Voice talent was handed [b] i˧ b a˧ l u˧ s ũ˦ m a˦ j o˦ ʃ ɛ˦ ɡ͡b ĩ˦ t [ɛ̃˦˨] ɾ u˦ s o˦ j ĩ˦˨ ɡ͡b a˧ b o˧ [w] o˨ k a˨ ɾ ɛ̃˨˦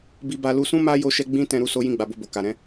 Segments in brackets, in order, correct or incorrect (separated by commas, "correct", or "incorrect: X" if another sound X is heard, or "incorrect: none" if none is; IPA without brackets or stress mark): correct, incorrect: ɛ̃˧, incorrect: b